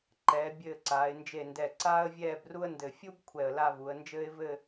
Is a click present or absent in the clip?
present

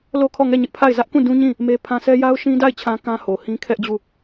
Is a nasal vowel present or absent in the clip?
present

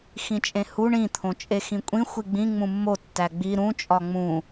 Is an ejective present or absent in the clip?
present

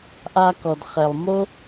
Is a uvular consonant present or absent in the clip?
present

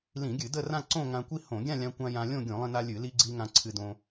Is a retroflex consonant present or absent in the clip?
absent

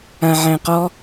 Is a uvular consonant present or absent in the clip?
present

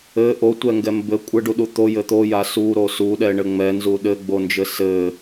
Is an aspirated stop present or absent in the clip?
absent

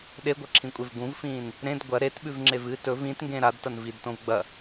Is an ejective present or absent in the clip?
present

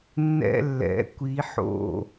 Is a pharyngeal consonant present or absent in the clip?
present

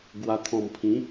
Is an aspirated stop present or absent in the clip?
present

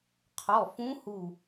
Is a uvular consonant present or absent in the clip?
present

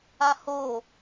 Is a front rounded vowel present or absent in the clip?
absent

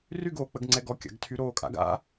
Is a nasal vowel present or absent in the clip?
absent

